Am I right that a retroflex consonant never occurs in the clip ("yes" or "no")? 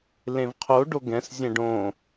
no